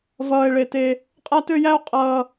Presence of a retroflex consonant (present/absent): present